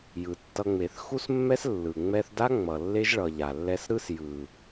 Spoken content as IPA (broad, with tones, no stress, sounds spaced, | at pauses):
j ɯ˨ tː ʌ˧ ŋ͡m e˨ θ x u˦ s mː ɛ˦ s lː ɯ˨ ŋ͡m ɛ˧ θ d a˦ ŋ͡m ʌ˨ lː e˦ ʒ ɭ ʌ˨ ʎ a˨ lː ɛ˦ s ɾ ɯ˦ s j ɯ˨